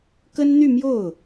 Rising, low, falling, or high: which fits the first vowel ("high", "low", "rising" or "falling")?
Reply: high